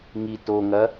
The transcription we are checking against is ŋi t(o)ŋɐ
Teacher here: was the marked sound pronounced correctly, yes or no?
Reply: yes